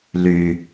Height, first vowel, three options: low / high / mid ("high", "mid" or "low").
high